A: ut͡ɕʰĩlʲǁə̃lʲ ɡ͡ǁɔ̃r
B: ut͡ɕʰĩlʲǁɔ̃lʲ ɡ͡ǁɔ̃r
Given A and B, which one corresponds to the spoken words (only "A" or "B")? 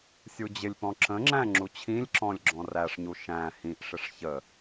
B